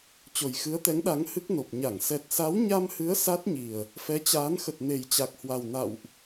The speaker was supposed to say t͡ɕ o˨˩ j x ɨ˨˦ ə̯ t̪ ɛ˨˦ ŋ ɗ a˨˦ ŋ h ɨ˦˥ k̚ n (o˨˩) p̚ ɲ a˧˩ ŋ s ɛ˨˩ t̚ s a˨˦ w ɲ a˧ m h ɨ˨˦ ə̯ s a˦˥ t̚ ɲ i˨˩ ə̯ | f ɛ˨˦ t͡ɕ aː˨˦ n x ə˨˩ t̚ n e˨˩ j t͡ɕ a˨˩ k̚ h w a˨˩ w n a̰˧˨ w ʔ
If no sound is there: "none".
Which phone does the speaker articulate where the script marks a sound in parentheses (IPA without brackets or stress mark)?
o˨˩